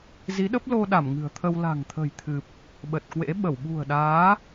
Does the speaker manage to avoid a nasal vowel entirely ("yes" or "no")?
yes